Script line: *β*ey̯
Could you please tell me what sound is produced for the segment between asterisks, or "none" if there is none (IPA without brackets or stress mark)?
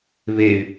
β